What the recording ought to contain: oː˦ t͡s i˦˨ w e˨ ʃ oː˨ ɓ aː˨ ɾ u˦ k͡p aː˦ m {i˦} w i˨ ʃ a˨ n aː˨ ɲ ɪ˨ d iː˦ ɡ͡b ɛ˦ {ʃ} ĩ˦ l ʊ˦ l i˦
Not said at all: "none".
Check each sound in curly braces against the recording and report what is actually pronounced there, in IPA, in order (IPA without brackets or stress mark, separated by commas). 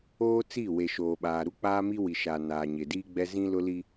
i˦, z